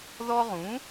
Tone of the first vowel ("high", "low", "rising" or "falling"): high